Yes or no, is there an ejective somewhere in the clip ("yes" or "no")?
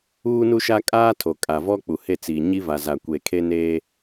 yes